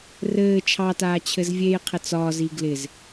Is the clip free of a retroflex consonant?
yes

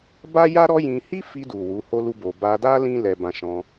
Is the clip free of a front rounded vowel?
yes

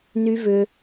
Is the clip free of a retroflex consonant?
yes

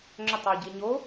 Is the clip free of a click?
no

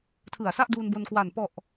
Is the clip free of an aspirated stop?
no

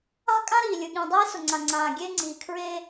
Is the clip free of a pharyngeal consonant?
yes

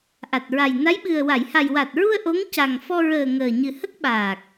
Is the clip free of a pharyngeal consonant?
yes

